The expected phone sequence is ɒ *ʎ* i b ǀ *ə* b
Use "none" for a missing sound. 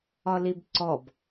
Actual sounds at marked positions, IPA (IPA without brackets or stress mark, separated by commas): l, ɔ